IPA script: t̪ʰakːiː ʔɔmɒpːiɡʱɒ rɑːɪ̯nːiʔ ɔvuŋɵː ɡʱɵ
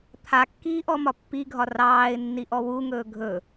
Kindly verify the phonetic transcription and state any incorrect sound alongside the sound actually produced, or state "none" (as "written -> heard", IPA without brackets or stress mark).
v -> w